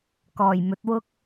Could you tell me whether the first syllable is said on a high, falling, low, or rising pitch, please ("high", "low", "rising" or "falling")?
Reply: low